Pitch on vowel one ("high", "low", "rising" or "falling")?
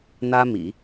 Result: high